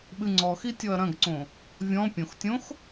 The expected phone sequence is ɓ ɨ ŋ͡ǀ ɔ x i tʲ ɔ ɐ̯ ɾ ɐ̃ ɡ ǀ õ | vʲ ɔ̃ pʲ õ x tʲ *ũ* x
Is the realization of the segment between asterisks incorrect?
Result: yes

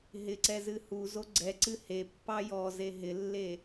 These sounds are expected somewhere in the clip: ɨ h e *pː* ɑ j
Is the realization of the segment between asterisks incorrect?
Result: no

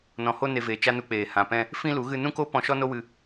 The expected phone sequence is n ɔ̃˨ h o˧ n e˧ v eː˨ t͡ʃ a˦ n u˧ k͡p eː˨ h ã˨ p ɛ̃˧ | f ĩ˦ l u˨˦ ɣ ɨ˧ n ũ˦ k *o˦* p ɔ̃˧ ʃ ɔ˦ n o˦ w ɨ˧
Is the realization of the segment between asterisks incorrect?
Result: no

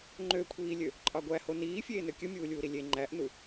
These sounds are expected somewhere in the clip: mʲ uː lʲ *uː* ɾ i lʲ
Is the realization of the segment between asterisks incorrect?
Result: no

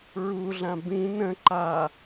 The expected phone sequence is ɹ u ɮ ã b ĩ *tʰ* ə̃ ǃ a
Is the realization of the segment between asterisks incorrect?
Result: yes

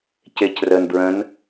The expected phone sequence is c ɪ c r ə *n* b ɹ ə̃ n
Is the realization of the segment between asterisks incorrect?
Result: no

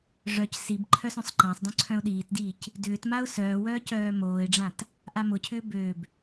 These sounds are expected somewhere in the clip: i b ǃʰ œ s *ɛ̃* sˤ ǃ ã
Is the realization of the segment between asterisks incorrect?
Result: yes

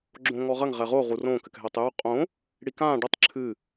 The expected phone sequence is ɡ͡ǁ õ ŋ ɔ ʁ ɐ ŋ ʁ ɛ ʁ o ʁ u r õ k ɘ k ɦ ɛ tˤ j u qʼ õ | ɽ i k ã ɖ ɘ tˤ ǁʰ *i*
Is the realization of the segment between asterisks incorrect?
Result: yes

